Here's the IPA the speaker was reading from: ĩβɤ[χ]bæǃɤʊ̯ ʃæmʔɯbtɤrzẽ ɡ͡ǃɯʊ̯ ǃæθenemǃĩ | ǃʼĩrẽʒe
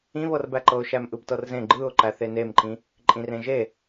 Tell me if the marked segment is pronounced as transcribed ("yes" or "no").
no